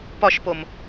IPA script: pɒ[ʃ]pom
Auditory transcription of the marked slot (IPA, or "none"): ʃ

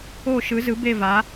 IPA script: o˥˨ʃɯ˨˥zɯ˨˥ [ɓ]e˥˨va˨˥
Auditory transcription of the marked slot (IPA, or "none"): b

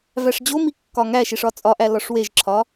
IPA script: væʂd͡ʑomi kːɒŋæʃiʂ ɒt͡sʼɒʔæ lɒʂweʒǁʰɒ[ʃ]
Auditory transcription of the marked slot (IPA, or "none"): none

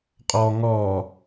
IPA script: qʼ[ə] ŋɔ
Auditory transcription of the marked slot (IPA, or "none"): ɔ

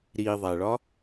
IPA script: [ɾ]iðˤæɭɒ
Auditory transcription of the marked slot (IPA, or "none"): ɾ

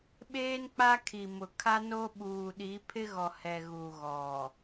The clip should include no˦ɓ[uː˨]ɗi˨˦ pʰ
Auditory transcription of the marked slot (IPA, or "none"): uː˨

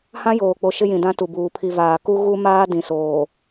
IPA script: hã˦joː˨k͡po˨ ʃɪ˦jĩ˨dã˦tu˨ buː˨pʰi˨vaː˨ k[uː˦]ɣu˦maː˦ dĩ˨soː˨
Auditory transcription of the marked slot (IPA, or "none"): u˦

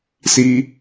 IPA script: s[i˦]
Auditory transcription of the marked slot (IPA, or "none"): i˦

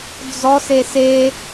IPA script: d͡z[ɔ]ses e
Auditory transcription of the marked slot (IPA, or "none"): ɔ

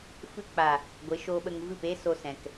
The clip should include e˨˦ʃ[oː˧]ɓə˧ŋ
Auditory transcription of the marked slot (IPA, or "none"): oː˧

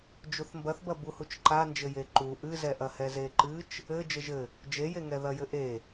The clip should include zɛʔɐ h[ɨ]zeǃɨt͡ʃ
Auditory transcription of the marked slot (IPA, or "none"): ɛ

